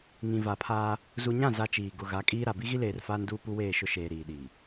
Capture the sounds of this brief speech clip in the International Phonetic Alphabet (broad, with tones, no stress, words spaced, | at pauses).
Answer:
ŋĩ˨va˨pʰaː˦ | zu˨ɲã˦˨ za˦t͡ʃiː˨ ɡʊ˨ ɣa˨˦kʼiː˦ɾa˨ bi˦ɣi˦leː˨r faː˦nduː˦ pu˦weː˦˨ʃʊ˦ʃeː˨ ɾiː˨ɗiː˨